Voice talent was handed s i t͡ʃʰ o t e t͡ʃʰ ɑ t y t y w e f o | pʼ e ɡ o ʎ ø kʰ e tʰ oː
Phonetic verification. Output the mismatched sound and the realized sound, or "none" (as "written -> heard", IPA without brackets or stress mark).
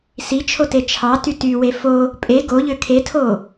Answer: none